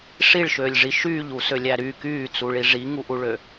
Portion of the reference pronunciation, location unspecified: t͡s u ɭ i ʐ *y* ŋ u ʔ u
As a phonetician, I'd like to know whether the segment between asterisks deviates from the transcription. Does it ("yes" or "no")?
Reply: yes